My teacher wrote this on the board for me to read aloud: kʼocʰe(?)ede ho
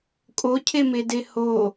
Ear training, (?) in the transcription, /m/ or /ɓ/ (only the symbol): m